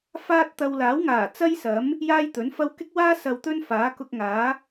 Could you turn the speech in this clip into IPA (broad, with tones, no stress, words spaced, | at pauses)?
faː˥t̚t̪ɐ˧w laː˨˥wŋaː˨˩ t͡sɐ˥jsɐ˨˥m | jaː˥jt̪ɵ˨˥nfɐ˥w kɪ˥k̚waː˥ sɐ˧wt̪ɵ˥n faː˨˥kʊ˧k̚ŋaː˨˥